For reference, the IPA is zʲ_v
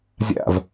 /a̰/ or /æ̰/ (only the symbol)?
a̰